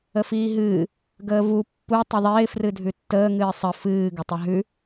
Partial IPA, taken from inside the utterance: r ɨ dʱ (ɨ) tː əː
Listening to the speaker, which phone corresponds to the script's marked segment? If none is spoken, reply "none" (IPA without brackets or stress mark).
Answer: ʉ